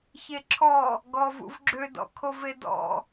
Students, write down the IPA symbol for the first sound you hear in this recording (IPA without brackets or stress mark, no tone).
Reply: ç